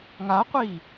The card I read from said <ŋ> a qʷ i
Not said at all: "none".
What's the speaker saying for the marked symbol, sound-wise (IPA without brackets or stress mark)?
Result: ŋ